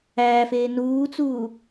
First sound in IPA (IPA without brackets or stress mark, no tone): æː